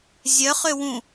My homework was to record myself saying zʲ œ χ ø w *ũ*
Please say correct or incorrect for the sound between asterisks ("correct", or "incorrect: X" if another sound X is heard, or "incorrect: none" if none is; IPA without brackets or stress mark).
correct